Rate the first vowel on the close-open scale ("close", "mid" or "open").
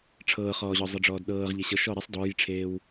mid